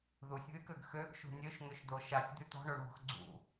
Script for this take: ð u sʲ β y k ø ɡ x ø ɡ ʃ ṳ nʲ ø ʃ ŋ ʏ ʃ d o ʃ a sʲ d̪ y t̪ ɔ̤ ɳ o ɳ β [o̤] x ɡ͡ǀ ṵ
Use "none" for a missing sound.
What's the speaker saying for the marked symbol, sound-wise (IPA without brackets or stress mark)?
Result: ɔ̤